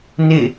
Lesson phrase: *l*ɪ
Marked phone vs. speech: incorrect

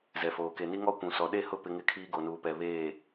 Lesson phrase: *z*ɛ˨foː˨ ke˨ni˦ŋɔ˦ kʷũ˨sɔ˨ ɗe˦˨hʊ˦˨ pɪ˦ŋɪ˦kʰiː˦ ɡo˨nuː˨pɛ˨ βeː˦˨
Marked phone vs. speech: correct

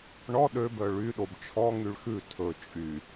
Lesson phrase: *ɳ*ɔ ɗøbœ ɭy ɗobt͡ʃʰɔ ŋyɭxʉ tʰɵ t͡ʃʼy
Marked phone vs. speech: correct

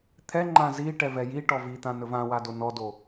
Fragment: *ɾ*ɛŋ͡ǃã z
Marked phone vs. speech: incorrect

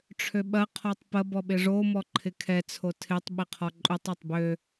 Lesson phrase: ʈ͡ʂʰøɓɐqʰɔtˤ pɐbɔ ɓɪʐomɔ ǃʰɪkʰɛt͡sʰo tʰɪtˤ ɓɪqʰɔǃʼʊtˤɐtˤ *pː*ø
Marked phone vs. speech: incorrect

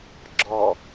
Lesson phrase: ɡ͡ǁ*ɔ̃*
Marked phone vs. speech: incorrect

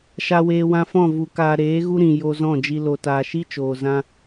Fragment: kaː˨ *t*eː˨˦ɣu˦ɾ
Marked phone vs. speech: incorrect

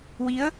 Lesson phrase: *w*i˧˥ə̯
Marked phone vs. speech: correct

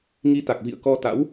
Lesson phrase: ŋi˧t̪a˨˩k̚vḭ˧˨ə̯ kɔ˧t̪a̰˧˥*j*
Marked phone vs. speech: incorrect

